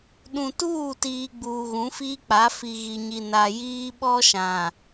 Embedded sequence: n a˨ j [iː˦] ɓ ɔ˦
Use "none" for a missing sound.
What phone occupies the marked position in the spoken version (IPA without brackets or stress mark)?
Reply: iː˦